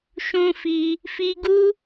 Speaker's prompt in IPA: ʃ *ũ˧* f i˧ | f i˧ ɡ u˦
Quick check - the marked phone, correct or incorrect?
correct